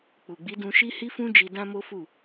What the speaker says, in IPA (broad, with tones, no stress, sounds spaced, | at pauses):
k͡p u˨ ɡ͡b i˨˦ d ũ˧ ʃ i˦ h i˦ f ũ˦ d͡ʒ i˧ d ã˦ m o˦ f u˦˨